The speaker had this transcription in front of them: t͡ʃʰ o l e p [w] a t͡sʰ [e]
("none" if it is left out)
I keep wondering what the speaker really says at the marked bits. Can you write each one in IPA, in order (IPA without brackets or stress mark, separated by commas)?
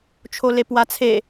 w, e